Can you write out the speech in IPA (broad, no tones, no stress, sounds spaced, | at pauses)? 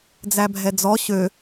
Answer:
d͡z æ bʱ ɛ d͡z ɔ ɕ ø